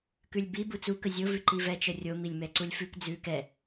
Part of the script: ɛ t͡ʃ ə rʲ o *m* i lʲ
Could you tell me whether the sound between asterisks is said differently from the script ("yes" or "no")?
no